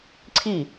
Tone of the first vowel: falling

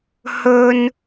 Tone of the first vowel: high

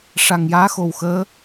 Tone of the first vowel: low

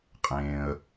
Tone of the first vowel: low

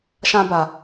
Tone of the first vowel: high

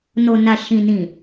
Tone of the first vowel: low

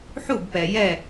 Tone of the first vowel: falling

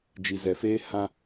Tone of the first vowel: low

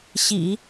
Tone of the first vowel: low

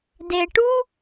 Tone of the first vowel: low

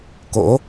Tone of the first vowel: rising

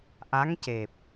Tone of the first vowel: rising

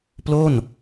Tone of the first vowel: falling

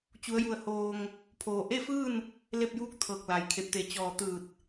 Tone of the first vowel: rising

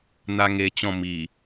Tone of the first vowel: high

